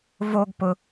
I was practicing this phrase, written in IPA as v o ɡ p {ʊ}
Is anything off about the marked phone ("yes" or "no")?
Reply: no